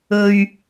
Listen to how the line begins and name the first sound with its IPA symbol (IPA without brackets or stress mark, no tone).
ɵ